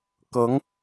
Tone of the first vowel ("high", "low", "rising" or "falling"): rising